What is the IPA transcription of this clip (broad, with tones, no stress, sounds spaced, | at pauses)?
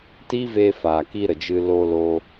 t i˦ v eː˧ f aː˨ k i˧ ɾ ə˨ d͡ʒ ɨ˧ l oː˧ l oː˧